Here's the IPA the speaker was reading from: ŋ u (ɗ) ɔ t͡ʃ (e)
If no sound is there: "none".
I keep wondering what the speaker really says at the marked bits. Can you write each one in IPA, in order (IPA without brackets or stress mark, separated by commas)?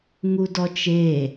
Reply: d, e